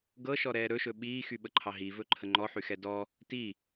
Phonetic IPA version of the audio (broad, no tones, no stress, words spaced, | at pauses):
ɡɤʃɔɾɛː ɾɵʃɵ ɓiːxyɓəǃʰɑ ɦivɵǃʰə ŋ͡ǃɔħyxɛ dɔ | ti